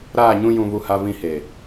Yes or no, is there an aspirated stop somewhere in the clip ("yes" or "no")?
no